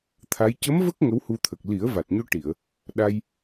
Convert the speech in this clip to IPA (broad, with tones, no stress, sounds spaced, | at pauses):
t̪ʰ a˧˥ j c ə˧˥ m v ə˦˥ k̚ ŋ ə˧˥ w h u˧ t̪ʰ ə˨˩ k̚ l i˨˩˦ ə̯ v a˨˩ t̚ ɲ o˧ ʈ i˨˩˨ ə̯ | ɗ a˧ j